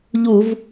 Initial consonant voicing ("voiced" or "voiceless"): voiced